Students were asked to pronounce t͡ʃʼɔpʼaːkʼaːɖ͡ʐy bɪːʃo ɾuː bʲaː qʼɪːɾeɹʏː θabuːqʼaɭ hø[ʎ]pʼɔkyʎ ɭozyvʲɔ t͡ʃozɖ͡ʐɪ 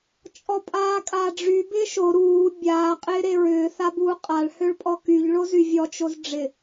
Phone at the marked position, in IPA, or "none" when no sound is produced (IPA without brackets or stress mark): ɭ